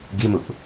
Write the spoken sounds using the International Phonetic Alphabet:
ɡimuʔ

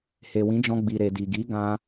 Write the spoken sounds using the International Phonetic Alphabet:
he˨wĩ˨˦d͡ʒɔ̃˧ɡ͡bi˨ ɾe˨di˨ ɡi˨˦ ɡã˦

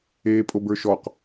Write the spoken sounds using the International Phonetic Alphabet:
eːpʼobə˞ʃɔq

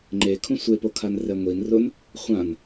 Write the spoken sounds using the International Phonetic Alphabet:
ŋ͡ǃekʰũ sʷepokʰan rɛŋʷin rʊn | χʷãn

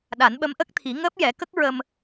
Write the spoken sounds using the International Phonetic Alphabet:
ɗa˨˩˦nɓə˧˥mʔə˦˥k̚t̪ʰi˨˩˦ ŋəː˦˥p̚jɛ˨˩˦kə˦˥k̚ ɹə˧m

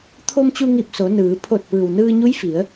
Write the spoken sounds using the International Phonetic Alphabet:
t̪ʰo˧mt͡ɕu˧ŋi˧˩p̚ so˩˧ nɯː˩˧ pʰo˧˩t̚ pɯː˩wnɯː˧ɲu˧˥j fi˩˧ə̯

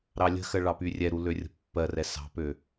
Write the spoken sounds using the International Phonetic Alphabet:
ɾɑlʲə̤xɜ ɭɑpyrʲɛɾu lørʲə̤pːɜrɛ sɑ̤pø

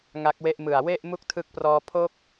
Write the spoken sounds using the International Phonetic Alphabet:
ŋa˦˥k̚we˥˩ʔmɯ˨˩a̯ we˥˩ʔ mu˥˩k̚tʰɯ˦˥k̚prɔː˧ pʰo˥˩k̚

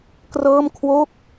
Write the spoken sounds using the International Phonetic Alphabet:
krɤː˥˩mkʰwo˥˩k̚

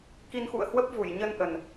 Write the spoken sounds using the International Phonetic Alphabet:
ki˧nxṵ˧˨ə̯hwə˦˥p̚vu˧˩j ɲə˧nʔə˨˩n

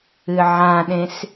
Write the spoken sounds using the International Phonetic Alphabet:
ɨʕãɗẽs

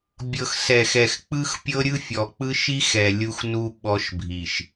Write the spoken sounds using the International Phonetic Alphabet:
bʲɤ˨xsɛ˨xɛ˨x k͡pɯ˦xpʲɤ˦ɾʲɯ˦ fʲɔ˨k͡pɯ˦ʃi˦x ɛ˨lʲu˦xnu˦ ɓɔ˦ʃbʱi˨ʃ

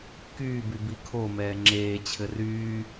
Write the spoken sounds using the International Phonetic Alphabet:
kyːby bikʰomɛː ŋ͡ǁeːt͡ɕʰɘ ryː

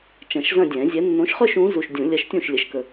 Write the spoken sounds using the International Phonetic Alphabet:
t͡ʃɐ̃˨˩˦ʃzɐ̃˥˧dʲɛ̃˨˩˦zʲɛ˨˥ nːõ˨˥ʃχœ˥˧ʃ ũ˨˥ zu˨ʃ dʲũ˨˩˦lʲɐ˨˥ʃtʲũ˥˩ʃ lʲə˨˥ʃkə˨

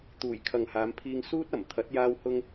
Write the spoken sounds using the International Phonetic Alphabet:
t̪uː˨˩jkʰɐ˨ŋhaː˨˧m pʰiː˧ŋsuː˥t̚ɐ˨˩mt̪ʰɐ˨˥t̚ jaː˧whʊ˧ŋ

